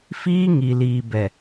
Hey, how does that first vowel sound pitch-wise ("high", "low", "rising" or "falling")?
high